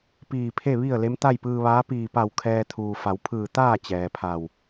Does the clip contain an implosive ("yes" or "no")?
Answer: no